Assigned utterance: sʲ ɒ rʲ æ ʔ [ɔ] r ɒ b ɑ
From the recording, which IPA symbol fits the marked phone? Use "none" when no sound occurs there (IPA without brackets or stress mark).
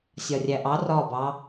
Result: ɑ